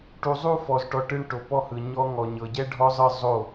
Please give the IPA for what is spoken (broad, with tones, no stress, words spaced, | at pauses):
ʈu˨zˤu˦˨fɔ˨zʈɔ˨ ʈɯ˧ɳ ʈo˨pɔ˦hɯ˨ ɲɔ˦ ŋɔ˨ɲɤ˨ ɟɛ˦ɖʱɔ˦zˤɯ˦˨ zˤo˦˨